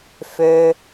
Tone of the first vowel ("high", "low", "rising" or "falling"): low